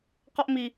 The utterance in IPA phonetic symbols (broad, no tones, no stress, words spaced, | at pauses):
qɔʔmi